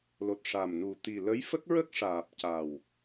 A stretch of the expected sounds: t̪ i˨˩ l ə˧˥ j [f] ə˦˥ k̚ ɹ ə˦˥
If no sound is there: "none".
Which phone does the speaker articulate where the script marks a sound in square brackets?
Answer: f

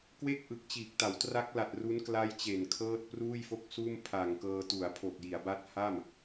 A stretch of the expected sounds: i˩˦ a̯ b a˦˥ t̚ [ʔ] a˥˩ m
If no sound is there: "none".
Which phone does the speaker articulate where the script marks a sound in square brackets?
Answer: h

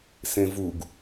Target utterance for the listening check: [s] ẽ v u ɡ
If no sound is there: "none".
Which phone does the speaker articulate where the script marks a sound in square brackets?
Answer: s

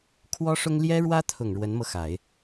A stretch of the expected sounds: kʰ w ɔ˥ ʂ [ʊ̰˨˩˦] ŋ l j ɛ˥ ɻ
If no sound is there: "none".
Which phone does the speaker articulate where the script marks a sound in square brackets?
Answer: ʊ˥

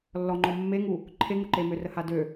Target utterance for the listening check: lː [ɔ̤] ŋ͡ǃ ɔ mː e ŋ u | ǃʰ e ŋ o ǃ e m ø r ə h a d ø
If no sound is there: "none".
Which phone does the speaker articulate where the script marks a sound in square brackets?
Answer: ɔ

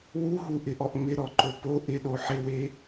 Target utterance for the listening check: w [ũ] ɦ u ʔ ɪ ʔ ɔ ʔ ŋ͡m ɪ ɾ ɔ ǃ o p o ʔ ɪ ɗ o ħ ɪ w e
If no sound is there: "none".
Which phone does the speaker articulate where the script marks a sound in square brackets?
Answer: u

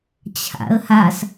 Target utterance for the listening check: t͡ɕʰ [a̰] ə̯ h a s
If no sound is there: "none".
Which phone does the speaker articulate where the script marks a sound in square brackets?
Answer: a̰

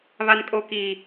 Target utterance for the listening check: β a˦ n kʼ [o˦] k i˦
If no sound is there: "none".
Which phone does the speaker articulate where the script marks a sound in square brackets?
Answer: o˦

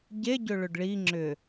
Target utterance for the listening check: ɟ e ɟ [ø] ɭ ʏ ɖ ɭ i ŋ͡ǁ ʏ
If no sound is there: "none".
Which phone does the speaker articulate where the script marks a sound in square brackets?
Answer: ø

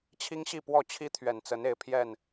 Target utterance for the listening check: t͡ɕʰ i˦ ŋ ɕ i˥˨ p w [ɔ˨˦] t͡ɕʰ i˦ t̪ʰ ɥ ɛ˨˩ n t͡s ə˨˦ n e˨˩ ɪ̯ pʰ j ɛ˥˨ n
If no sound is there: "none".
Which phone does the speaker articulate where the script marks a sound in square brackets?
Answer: ɔ˥˨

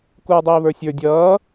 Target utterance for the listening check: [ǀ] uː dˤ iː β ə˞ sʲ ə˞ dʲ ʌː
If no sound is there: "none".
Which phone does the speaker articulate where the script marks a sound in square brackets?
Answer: k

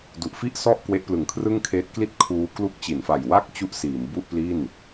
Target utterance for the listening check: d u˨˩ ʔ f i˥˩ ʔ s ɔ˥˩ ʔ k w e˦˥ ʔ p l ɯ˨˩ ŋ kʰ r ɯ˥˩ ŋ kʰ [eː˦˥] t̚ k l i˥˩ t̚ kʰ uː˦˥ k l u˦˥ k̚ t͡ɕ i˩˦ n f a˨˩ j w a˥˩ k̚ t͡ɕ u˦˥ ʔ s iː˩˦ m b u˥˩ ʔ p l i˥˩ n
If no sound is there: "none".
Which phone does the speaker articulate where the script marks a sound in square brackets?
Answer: eː˦˥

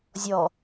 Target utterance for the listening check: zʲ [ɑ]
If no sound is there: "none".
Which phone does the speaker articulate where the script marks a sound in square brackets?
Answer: ɔ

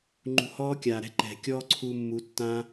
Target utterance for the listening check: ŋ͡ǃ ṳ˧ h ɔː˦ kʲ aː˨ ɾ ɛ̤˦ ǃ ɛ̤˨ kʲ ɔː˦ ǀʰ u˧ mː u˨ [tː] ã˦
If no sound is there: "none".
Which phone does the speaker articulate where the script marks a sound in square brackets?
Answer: tː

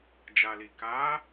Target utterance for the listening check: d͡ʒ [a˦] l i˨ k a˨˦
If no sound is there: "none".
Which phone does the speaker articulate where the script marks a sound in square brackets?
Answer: a˨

